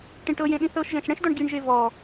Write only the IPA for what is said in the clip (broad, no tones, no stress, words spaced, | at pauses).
ʈĩʈɤjẽ ɗĩθɤʃʒɛ̃ʃ ɽɛ̃ʃdɔɳ ɡiɳʒe vɔ